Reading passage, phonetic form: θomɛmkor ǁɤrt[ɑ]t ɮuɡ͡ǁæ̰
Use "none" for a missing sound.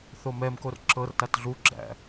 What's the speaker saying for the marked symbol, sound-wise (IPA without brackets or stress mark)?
a